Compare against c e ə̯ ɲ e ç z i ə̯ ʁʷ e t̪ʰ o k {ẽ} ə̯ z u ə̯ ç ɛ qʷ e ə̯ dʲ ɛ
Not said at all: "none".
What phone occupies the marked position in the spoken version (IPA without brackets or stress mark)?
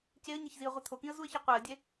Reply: ĩ